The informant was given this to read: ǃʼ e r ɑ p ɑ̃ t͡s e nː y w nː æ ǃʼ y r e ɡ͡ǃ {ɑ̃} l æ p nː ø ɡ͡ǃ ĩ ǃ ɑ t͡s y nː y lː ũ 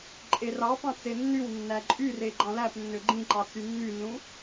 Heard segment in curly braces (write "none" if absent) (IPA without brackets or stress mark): ɑ̃